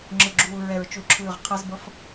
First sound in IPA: ŋ͡ǁ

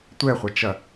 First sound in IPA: tʷ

